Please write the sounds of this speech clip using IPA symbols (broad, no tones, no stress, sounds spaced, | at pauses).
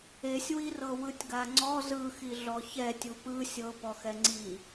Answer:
e sʲ w i r ɤ w ɯ tʲ ɡ a ŋ͡ǀ ɔ z ɯ x i ɮ ɔ ç ɛ tʲ u p ɯ sʲ ɤ p ɔ x ɛ ŋ͡ǀ i